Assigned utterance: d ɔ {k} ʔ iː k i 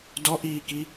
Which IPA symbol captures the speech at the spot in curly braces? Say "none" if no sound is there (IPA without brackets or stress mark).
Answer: none